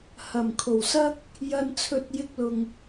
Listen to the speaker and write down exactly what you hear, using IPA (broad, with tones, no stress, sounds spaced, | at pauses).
h ɐ˨˩ m kʰ o˨˩ w s ɐ˥ k̚ | j ɐ˨ n t͡sʰ ɵ˨˥ t̚ j ɪ˧ k̚ l ʊ˨ ŋ